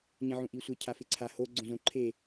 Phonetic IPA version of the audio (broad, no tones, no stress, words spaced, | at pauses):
ɲẽʕũʔisʷɪ cʰafɪǀʰa ho ɡ͡ǀõzõǃʰe